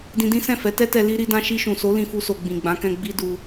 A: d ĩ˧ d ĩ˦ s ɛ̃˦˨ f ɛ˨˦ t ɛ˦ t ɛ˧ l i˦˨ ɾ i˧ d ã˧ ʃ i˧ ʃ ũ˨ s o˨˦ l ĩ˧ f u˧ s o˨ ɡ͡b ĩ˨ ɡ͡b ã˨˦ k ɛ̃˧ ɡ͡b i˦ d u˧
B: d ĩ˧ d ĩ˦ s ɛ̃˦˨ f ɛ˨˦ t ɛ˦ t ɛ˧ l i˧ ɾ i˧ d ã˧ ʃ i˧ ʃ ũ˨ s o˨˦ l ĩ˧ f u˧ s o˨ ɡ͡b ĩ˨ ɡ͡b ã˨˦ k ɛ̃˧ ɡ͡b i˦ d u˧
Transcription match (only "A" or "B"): B